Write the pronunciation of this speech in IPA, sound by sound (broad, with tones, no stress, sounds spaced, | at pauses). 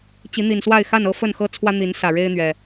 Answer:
t͡ɕ i˨˦ n̪ i˨˩ n s w a˥˨ ɪ̯ x a˥˨ n ɤ˦ f ə˥˨ n x ɤ˦ t͡sʰ w ä˦ n̪ i˨˦ n s ä˨˩ ɻ e˦ ɪ̯ n̪ ɥ ɛ˨˩